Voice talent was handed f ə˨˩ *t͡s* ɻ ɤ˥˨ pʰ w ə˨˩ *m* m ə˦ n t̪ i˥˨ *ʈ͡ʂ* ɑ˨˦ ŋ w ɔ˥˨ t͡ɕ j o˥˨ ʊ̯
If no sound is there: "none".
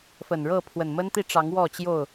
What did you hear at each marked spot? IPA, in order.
n, n, ʈ͡ʂ

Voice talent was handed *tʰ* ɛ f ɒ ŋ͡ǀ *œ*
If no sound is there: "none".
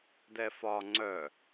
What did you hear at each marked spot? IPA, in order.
d, œ

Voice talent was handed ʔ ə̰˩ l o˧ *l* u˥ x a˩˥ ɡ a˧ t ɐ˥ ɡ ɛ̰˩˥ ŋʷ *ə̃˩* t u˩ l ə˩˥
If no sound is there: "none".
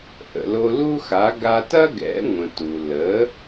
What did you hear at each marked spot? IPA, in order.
l, ə̃˩

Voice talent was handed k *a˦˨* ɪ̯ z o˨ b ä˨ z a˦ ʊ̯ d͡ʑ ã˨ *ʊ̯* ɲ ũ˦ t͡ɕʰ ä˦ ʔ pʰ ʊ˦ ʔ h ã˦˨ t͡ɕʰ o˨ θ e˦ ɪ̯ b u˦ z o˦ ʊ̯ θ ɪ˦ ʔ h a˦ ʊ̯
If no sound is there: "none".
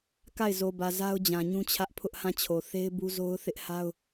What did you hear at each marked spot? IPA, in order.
a˦˨, none

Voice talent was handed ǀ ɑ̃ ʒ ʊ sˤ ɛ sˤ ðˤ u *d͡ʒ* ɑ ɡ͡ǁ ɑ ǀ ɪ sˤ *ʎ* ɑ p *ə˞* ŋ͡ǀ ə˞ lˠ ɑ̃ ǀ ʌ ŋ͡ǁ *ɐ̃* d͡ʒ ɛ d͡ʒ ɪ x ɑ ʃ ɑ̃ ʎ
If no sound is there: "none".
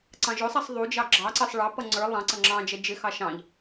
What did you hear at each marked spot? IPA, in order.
d͡ʒ, ɭ, ʌ, ɑ̃

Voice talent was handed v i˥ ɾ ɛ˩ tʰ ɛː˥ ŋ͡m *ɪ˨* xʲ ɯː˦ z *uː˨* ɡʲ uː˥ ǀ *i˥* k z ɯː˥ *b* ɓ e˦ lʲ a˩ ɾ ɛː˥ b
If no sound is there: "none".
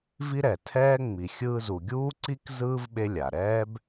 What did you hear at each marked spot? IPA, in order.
i˨, u˨, i˥, v

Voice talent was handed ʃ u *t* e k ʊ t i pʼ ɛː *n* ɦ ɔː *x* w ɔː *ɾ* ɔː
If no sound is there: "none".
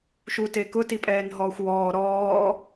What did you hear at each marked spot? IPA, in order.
t, n, xʷ, ɾ

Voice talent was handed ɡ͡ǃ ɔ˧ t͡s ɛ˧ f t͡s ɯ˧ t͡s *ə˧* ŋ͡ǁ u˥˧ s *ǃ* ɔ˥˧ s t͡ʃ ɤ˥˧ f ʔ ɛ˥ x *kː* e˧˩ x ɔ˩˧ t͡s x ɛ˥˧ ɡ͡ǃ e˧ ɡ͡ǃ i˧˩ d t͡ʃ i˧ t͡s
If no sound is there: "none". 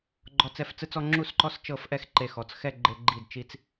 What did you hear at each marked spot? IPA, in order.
ɔ˧, ǃ, ǃ

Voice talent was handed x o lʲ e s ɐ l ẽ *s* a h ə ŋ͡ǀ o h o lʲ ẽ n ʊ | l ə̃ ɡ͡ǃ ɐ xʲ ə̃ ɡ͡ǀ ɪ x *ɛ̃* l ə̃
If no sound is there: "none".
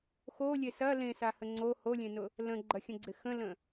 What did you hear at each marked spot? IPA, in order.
s, ə̃

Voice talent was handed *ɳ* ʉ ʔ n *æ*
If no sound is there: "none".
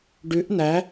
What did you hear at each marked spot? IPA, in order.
ɖ, æ

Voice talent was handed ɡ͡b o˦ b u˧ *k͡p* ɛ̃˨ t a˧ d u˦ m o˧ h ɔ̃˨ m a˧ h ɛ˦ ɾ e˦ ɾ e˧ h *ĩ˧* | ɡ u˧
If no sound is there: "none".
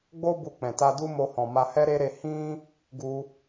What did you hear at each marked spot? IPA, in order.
k͡p, ĩ˦

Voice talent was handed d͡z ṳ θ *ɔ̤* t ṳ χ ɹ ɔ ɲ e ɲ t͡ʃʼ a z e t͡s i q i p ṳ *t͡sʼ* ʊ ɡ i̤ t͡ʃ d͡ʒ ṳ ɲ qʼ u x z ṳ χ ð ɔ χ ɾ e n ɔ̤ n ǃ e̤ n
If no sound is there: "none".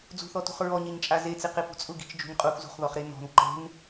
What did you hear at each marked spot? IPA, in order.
ɔ, t͡sʼ

